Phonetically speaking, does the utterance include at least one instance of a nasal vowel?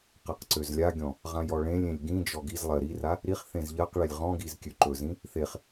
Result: yes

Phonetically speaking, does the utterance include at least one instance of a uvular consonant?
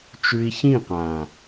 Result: yes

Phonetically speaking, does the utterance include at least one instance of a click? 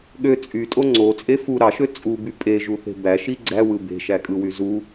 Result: yes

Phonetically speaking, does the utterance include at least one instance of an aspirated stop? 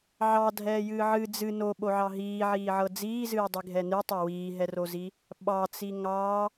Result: no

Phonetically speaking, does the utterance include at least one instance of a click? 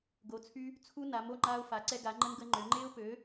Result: yes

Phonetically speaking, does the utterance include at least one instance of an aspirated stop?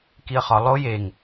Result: no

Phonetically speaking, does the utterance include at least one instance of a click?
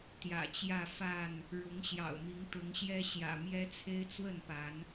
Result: no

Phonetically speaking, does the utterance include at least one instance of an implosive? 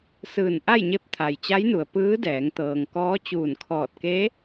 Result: no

